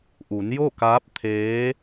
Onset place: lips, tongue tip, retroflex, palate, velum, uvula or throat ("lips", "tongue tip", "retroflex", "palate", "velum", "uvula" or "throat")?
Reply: throat